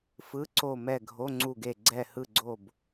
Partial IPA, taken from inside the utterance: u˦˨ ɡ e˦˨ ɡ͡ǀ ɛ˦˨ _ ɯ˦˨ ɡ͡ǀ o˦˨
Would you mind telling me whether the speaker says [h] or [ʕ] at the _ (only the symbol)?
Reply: h